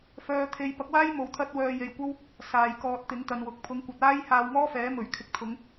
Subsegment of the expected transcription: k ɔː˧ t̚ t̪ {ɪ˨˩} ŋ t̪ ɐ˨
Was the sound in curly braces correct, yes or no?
no